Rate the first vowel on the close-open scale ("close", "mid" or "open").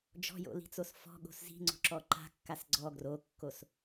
mid